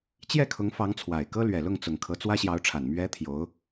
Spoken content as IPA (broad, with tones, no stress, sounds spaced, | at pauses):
t͡ɕ j ɛ˥˩ kʰ ʊ˧˥ ŋ f ɑ˧˥ ŋ t͡sʰ w a˨˩ ɪ̯ k ɤ˥ l ɥ ɛ˨˩ l ʊ˥˩ ŋ t͡s ʊ˨˩ ŋ kʰ ɤ˧˥ t͡s w ä˥ ɕ j ɑ˧˥ ʊ̯ ʈ͡ʂʰ a˨˩ n m ɥ ɛ˧˥ t̪ʰ j o˧˥ ʊ̯